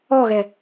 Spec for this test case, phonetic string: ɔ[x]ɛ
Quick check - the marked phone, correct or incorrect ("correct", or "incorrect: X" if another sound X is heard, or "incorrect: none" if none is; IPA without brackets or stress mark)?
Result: incorrect: ɣ